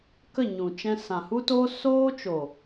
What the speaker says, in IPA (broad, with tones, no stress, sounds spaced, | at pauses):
k ə˦˨ ɲ ũ˨ t͡ʃ ɛ̃˧ s ã˨ h u˦ t oː˦ s oː˦ t͡ʃ o˨